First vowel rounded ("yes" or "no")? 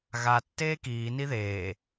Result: no